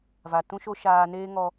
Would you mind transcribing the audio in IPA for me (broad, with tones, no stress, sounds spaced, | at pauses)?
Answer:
v a˨ t ũ˧ ʃ o˧ ʃ aː˧ n eː˦ ŋ ɔ˧